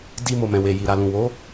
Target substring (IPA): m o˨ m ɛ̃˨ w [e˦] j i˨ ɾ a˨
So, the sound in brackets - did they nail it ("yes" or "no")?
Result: no